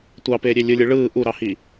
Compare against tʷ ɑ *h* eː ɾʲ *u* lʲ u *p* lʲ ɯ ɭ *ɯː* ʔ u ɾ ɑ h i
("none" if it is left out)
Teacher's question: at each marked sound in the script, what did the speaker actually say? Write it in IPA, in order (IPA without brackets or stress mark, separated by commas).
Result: p, ø, none, ɯː